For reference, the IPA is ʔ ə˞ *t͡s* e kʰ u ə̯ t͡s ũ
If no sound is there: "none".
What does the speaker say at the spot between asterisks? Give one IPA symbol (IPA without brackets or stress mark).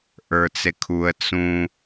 t͡s